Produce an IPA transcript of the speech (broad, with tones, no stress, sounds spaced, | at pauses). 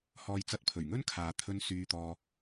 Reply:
h ɔː˧ j t͡s ɐ˧ t̚ pʰ ɵ˨˩ ɥ ŋ ɵ˥ n kʰ aː˨ t̪ʰ ɵ˧ n s yː˧ t̪ ɔː˧